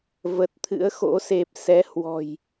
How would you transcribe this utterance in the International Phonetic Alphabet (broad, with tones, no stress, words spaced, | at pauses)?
və˨˩t̚t̪ʰɨ̰˧˥ə̯xo̰˧˥ se˨˩p̚sɛ˨˦hwɔ̤˨˩j